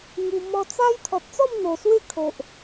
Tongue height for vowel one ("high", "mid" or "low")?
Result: high